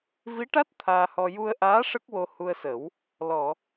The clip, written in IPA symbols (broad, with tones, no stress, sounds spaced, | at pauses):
v i˧˥ ʈ a˦˥ t̚ t̪ʰ aː˧ h ɔ˧ j u˧ ə̯ ʔ aː˧˥ ʂ ə˦˥ k̚ w o˧ h u˧ ə̯ s ə˨˩˦ w | l ɔ˨˩˨